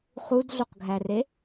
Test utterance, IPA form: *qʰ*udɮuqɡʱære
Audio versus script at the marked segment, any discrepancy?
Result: yes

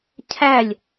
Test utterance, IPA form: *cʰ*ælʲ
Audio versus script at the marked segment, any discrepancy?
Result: no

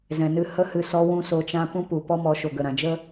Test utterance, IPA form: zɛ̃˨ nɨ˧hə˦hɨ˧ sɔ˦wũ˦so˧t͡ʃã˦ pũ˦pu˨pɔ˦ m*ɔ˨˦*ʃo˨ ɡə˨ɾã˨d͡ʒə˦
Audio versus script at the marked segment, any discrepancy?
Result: no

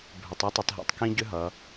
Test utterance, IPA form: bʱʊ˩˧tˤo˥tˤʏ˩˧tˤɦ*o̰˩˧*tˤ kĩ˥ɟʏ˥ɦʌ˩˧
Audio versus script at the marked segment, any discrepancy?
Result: no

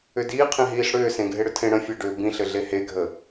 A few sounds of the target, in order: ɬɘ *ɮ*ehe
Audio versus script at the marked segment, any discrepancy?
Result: no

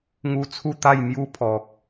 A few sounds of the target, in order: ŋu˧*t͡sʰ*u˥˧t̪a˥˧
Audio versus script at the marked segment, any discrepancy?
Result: no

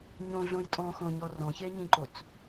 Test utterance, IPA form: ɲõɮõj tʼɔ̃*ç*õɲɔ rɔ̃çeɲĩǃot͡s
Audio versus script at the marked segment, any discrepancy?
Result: yes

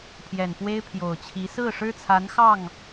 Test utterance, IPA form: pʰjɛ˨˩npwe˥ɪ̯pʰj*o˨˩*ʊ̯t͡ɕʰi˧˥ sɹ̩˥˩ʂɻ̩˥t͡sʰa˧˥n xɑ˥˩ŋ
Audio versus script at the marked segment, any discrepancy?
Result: no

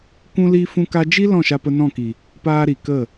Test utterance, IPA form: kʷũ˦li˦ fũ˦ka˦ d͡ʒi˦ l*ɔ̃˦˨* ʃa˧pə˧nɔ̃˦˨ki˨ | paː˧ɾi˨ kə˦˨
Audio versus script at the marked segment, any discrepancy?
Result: no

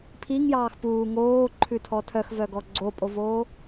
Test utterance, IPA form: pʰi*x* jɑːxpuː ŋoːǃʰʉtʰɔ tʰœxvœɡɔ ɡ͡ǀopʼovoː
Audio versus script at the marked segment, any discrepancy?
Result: yes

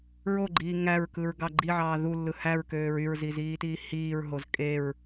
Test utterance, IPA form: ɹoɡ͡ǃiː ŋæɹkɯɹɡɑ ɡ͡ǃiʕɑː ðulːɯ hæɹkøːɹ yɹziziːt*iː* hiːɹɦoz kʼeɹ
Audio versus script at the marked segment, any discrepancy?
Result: no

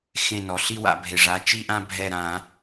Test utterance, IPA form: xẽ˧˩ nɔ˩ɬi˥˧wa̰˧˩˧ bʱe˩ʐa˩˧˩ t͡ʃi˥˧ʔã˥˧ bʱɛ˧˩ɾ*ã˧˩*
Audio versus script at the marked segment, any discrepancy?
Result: yes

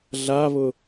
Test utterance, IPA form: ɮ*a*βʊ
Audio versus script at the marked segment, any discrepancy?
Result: no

